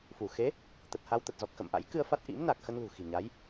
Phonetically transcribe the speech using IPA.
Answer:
f u˧˩ x e˨˦ | t̪ ə˨˩ t̚ h a˧ w t̪ ə˨˩ t̚ z ɔ˨˩ k̚ x ə̰˧˨ m ʔ a̰˧˥ j k ɨ˧ ə̯ f a˦˥ t̚ ʔ ḭ˧˥ m n a˨˩ k̚ x ə˧ n l ṳ˨˩ x i̤˨˩ ɲ a˨˦ j

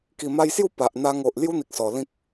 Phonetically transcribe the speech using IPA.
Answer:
k i˨˩ m a˧ j s j u˥˧ p a˨ ʔ n̪ a˧ ŋ o˨ ʔ l j u˦ n̪ i˨ k̚ s ɔ˨˩ l ĩ˦ k̚

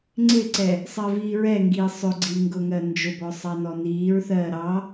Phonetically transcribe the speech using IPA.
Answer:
ŋ͡ǀ ɪ ǀ ɛ | sˤ ɜ v iː ɹ ɛ ŋ ɡ iː sˤ ʊ ɡ͡ǀ i ŋ ɡ ʊ ŋ ɜ n d͡ʒ ʊ b ɔ sˤ ɑ n ɔ n iː ɹ θ ɜː ɾ ɑ

